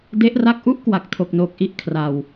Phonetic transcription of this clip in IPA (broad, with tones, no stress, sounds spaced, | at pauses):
d e˦˥ ʔ r a˥˩ k̚ ʔ u˥˩ ʔ k w a˨˩ k̚ tʰ o˨˩ k̚ n oː˨˩ k̚ ʔ i˦˥ ʔ kʰ r a˧ w